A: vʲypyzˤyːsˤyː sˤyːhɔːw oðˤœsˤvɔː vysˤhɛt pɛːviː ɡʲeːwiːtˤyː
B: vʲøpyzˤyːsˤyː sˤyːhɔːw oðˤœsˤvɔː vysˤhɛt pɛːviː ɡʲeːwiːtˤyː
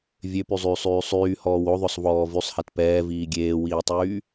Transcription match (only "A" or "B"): B